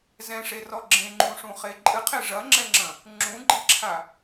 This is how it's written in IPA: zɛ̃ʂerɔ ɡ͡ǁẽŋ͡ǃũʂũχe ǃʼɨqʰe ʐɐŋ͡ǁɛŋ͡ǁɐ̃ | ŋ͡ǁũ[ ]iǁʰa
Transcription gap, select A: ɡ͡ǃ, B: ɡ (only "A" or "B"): A